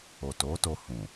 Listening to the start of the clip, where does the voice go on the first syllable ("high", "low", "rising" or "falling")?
low